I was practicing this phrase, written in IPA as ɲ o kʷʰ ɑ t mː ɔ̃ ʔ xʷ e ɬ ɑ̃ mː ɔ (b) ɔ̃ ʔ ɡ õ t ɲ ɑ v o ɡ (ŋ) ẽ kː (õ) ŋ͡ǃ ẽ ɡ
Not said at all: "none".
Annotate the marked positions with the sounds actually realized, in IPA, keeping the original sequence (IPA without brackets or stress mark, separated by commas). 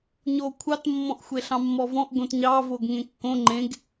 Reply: v, ŋ, õ